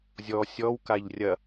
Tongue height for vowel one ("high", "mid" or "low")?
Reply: mid